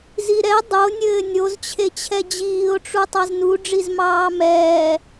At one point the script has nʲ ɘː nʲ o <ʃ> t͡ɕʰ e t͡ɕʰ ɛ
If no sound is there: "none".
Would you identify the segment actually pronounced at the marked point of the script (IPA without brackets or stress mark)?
z